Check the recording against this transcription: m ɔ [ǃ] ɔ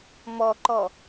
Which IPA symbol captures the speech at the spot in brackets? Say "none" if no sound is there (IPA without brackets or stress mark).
ǃ